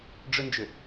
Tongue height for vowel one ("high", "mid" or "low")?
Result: high